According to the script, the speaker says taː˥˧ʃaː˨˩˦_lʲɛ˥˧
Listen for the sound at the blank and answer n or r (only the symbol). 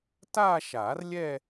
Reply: r